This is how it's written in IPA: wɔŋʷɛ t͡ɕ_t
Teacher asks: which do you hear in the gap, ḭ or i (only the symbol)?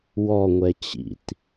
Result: ḭ